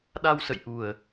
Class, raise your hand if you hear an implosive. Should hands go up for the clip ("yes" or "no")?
yes